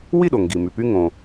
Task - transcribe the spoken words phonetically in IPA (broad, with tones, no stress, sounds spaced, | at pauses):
w i˥˨ ɗ o˩ ŋ ɡ i˩ m y˩ p y˧ ŋ õ˩